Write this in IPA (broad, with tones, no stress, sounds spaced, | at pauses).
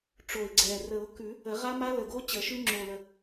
ʈ͡ʂ o˨˩ ɪ̯ ɡ͡ǀ ɛ˨˩ r ə˨˩˦ ʊ̯ k ʉ˨˩˦ | ə˨˩˦ ʁ a˦˥ m a˦˥ l ə˨˩ ɡ o˦˥ t͡ɕ ə˨˩˦ ʃ ʉ˦˥ ŋ͡ǁ o˨˩ l ə˨˩